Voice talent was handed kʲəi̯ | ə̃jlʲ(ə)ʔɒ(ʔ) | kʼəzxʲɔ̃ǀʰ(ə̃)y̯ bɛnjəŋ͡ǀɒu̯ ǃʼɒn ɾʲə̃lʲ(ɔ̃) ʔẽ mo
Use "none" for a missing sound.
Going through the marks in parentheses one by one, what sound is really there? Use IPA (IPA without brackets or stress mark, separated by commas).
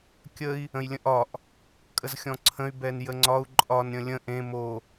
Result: ə̃, ʔ, ə̃, ə̃